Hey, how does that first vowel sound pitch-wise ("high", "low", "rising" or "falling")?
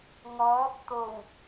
rising